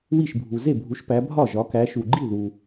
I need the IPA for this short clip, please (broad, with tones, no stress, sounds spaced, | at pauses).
w i˥˩ ʃ bʱ u˨ z e˥˩ bʱ u˨˦ ʃ p æ˨˦ bʱ ɒ˥˩ ʒ ɒ˨˦ k æ˨˦ ʃ u˨ ɡ͡ǃ i˥˩ ð u˨